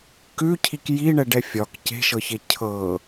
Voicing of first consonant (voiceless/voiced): voiceless